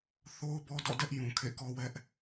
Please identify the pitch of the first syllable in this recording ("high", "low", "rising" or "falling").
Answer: high